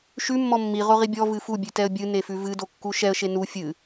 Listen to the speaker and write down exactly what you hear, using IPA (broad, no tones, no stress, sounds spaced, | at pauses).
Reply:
ʃ ʉ mː ɔ mː i ʁ o ʁ i bʲ ɔ v ɨ f u bʲ ʉ t ɛ ə̯ bʲ ɨ n e f ʉ v ɨ d o kː u ʃ ɛ ə̯ ʃ e n u fʲ ɨ